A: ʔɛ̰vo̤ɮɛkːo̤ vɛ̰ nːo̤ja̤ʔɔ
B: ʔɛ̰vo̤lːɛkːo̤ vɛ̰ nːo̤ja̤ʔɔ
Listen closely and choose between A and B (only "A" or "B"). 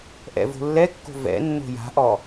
B